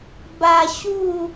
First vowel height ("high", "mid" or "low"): low